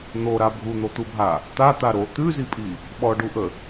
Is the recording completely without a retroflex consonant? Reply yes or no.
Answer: no